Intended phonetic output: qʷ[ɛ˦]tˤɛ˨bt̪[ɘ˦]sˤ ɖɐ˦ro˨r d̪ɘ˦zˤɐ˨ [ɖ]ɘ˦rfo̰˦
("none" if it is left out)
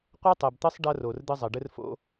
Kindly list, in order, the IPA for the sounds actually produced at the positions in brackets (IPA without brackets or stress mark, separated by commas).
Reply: ɛ˦, ɘ˦, ɖ